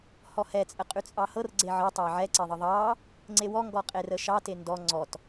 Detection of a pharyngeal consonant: present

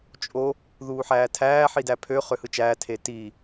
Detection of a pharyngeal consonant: present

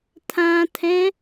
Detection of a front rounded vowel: absent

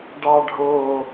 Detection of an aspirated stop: absent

